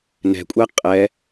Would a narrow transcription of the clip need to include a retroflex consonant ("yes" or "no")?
no